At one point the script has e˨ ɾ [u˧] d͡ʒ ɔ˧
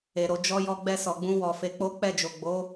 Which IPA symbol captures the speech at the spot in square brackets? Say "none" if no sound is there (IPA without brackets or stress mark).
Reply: o˧